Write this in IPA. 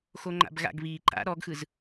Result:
x o ŋ͡ǃ a̰ b ɣ a̰ ɡ β iː ǃ a̰ ɾ ɔ ɡ x ɯ z

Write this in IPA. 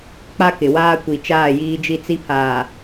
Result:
k͡p a˦ k ɪ˨ w aː˦ kʷ i˨ t͡ʃ aː˦˨ j iː˦ d͡ʒ i˦ t͡s i˦ pʰ aː˨

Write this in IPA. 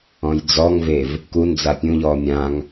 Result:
ɔ̃ j d͡z ɔ ŋ v e v | k u n d͡z a pʲ ũ ʎ ɔː mʲ ã ŋ

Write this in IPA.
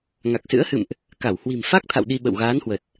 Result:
ŋ a˨˩ k̚ s ɨ̰˧˥ ə̯ h ɨ̰˧˨ m ʔ | k a˧˩ w h w i̤˨˩ m f a˦˥ k̚ t̪ʰ a̰˧˨ w ɗ i˧ ɓ ə̰˧˨ w ɣ aː˨˦ n h w ə˨˩ t̚

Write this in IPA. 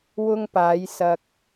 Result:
w ʊ˧ ŋ p aː˨˧ j s ɐ˧ k̚

